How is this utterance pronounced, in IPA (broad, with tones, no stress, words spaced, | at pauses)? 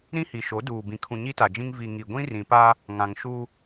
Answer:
ɾĩ˦hi˨ʃo˨˦duː˨ bĩ˨kʰũ˨ ɲi˦ta˨d͡ʒĩ˦ŋ vi˨ ŋi˨ ɡʷĩ˦rĩ˨pa˦ | ŋã˨ŋ ʃu˦